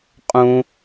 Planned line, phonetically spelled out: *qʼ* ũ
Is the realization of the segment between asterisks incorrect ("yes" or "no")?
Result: no